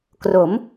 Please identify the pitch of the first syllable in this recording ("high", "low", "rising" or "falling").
rising